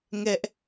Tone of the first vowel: high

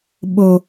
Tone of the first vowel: low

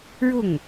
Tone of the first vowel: falling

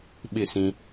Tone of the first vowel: falling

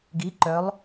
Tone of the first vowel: rising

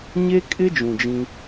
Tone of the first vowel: high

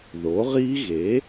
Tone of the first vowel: rising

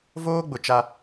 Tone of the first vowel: high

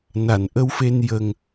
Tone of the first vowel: low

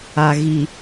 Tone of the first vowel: low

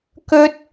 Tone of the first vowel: high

